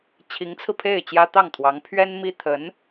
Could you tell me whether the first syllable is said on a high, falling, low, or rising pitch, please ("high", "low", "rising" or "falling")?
rising